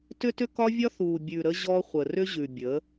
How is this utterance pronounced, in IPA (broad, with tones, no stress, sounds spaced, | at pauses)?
t ʏ˦ t ʏ˦ k ɒ˦ vʲ ɒ˦ θ u˨ bʲ ʉ˨ ɾ ə˦ ʑ ɔ˦ χʷ ə˨ r ʏ˦ ʑ ʉ˨ bʲ ə˨˦